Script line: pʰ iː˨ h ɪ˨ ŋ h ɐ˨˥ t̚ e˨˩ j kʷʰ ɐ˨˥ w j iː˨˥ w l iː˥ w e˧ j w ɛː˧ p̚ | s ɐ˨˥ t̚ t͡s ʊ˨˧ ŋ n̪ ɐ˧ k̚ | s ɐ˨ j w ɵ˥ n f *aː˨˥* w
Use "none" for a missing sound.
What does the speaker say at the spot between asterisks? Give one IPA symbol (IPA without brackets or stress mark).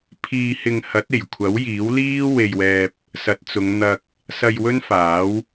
aː˨˥